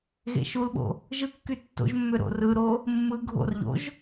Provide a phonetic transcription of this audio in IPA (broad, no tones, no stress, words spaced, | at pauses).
ɣḛʃulɓo̰ | ʒɯkːy tːo̰ʒmːø ɾo̰rɯɾo | mːɯ ɡʱo̰rʎo̰ʒ